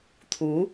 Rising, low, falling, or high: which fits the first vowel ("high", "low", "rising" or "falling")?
rising